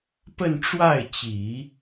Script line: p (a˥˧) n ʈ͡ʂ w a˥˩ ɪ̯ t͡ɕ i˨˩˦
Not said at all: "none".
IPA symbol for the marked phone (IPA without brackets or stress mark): ə˥˧